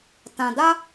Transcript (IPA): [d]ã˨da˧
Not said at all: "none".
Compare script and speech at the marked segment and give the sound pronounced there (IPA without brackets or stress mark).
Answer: t